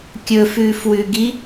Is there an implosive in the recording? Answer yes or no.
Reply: no